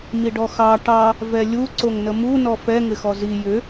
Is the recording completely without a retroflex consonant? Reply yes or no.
no